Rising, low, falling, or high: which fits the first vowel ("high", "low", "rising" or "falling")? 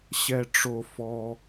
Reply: low